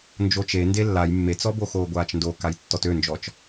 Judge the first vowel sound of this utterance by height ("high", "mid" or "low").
mid